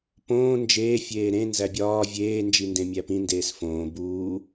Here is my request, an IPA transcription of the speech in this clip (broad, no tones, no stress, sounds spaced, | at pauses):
p õː n d͡ʒ eː fʲ eː ɾ ẽ n z æ bʲ ɒː vʲ eː n d͡ʒ i n d ẽ mʲ æ p ĩ n d eː s f õː b uː